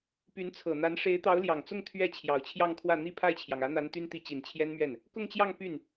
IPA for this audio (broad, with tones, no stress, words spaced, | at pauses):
py˧˥nt͡sʰɤ˨˩n̪a˧˥n ʂe˧˥ɪ̯t̪ɑ˧˥ʊ̯ljɑ˨˩ŋt͡sʊ˥˧ŋ t̪ʰɥɛ˥˩ t͡ɕʰjɑ˨˩ʊ̯t͡ɕʰjɑ˥˧ŋkʰwä˥˩ n̪i˥pʰa˥˩ɪ̯t͡ɕʰjɑ˩ŋ ä˧˥n̪a˧˥n t̪y˥nt̪i˧˥t͡ɕi˨˩n t͡ɕʰjɛ˥nmɥɛ˥˩n | kʊ˥˧ŋt͡ɕjɑ˥˧ŋ py˥˩n